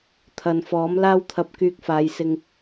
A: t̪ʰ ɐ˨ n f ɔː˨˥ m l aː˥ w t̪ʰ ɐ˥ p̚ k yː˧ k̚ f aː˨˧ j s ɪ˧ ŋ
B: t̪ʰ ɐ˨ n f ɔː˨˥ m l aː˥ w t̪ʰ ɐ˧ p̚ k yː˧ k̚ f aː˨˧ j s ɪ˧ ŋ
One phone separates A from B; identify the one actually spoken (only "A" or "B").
B